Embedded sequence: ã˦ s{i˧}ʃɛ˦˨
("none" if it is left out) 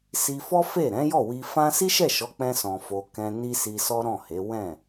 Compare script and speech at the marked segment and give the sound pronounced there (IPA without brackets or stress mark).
i˦